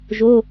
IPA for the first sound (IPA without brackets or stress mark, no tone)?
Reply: ʒ